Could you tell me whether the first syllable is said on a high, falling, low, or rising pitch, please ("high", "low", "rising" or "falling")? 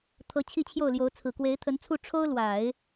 rising